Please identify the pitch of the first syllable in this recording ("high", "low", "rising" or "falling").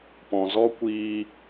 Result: low